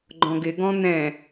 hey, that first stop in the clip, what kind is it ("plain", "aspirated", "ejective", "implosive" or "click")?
click